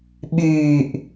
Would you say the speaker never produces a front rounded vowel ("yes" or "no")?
no